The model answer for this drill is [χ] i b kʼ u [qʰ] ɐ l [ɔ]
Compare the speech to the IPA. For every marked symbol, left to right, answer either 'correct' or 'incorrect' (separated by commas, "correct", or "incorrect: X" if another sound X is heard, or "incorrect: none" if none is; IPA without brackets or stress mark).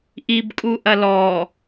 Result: incorrect: ʔ, incorrect: ʔ, correct